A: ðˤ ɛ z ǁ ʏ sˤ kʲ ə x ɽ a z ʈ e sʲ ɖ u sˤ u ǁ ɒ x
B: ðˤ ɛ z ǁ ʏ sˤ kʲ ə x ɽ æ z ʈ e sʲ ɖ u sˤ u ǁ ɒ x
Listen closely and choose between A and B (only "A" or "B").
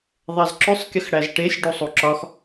B